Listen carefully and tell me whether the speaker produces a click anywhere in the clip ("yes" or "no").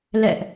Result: no